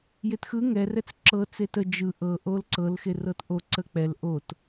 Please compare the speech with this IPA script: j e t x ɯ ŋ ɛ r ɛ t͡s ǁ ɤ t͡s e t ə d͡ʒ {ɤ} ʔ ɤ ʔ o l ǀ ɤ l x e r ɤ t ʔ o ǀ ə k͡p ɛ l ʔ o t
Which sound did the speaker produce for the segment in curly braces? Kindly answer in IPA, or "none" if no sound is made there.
ɯ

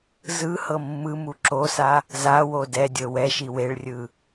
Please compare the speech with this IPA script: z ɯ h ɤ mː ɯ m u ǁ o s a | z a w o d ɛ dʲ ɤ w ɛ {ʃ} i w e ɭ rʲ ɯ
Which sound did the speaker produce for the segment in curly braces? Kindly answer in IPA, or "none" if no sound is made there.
ʃ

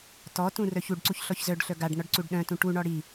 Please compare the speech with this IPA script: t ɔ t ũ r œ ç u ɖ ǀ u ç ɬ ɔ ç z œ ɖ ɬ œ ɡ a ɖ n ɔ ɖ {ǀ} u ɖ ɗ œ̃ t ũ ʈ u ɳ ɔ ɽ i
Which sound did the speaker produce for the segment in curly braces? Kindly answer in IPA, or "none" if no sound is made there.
ǀ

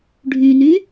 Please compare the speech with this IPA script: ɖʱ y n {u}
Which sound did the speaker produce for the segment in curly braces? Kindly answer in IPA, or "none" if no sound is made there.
y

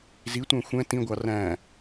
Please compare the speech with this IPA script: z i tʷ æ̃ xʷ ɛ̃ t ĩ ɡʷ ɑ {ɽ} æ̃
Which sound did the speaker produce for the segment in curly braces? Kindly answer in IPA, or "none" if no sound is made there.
r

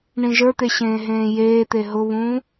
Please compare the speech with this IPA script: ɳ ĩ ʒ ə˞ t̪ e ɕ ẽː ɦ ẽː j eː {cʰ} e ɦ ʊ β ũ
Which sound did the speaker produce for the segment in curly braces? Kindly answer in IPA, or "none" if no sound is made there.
t̪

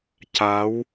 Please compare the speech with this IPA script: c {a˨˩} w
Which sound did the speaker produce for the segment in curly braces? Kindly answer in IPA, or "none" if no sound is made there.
a˧˥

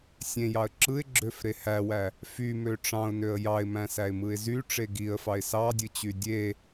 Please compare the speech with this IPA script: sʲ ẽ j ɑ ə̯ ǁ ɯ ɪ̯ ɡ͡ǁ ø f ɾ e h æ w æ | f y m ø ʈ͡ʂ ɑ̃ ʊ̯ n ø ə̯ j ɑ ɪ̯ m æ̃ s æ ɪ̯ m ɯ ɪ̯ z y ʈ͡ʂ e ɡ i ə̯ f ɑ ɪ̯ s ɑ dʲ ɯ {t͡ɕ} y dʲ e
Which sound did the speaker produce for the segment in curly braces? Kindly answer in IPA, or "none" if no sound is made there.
t͡ɕ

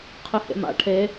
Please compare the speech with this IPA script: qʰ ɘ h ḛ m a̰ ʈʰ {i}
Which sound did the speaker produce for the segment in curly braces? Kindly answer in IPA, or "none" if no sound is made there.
e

